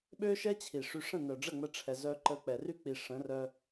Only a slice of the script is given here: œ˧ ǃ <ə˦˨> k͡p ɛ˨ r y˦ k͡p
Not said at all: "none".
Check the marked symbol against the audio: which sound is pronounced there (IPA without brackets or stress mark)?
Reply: ə˧